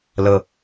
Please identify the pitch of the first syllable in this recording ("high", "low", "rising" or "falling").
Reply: low